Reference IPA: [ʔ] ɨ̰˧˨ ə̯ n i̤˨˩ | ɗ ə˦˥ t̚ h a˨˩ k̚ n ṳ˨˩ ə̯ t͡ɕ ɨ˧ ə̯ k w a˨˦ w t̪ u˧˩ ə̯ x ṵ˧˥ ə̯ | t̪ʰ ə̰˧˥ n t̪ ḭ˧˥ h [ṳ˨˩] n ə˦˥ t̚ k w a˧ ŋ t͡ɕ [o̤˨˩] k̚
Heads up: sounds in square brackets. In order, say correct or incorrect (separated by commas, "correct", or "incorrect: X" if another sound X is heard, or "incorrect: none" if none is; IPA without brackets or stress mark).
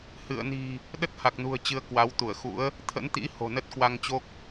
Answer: incorrect: h, incorrect: o̤˨˩, incorrect: o˦˥